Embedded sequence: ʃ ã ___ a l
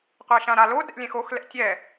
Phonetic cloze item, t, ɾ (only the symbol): ɾ